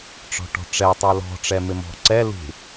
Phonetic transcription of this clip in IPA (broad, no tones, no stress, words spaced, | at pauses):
ʈ͡ʂɔ̤ʈɔ̤ʈ͡ʂɛ tˤolɔ̤ ʈ͡ʂɛmɪmɔ̤ǀɛ lṳ